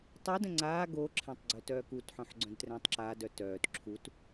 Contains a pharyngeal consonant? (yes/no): yes